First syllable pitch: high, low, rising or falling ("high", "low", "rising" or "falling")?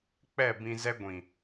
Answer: falling